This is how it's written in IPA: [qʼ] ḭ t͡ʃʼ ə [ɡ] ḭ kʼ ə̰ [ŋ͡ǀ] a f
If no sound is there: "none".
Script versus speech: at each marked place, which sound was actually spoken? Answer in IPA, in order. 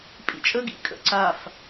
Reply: pʼ, ɡ, ǀ

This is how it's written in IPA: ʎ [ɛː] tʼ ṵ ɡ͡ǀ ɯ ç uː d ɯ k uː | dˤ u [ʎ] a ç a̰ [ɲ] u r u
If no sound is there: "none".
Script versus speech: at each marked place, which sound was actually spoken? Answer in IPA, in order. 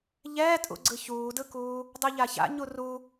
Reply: ɛː, ʎ, ɲ

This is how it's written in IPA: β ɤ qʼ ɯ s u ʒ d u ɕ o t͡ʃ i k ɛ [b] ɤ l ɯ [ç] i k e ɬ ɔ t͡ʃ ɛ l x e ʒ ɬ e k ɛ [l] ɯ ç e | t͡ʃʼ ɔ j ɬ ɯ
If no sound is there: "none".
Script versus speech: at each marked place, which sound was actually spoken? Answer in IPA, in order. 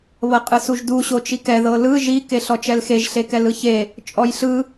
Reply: ð, ʒ, l

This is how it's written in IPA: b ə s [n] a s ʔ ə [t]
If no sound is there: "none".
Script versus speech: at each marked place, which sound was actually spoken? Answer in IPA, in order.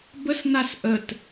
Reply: n, t

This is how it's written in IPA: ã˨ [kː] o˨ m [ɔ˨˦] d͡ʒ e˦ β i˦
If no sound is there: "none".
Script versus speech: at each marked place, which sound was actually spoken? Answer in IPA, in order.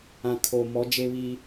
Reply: kʰ, ɔ˨˦

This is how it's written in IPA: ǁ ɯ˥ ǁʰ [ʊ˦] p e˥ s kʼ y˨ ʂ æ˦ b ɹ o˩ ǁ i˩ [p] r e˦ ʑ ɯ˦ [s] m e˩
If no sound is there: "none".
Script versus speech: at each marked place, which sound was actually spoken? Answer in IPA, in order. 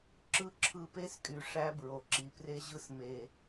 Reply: ɯ˦, p, s

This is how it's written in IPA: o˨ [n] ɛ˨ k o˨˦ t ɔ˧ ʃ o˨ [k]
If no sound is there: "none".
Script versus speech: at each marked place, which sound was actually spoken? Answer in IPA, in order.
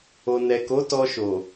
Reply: n, none

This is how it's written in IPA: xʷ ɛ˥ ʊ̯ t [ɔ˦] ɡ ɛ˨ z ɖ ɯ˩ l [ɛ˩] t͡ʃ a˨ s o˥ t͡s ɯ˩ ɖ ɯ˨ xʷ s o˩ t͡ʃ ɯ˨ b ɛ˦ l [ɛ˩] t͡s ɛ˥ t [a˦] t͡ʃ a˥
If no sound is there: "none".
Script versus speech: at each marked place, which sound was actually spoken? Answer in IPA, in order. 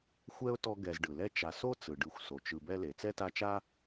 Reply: ɔ˦, ɛ˦, e˩, a˦

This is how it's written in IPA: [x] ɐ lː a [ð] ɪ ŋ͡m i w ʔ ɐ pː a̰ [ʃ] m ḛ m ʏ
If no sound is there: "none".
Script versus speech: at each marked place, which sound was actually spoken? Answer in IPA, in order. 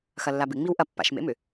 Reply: x, b, ʃ

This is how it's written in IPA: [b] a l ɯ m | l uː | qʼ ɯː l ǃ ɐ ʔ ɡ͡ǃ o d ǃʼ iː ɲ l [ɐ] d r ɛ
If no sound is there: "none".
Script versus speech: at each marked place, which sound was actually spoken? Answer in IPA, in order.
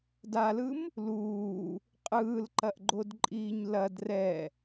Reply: d, ɐ

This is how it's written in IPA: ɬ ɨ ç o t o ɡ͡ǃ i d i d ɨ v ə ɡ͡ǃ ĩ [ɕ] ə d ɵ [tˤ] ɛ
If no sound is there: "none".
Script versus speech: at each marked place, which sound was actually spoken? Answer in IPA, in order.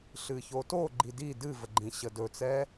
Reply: ɕ, t͡s

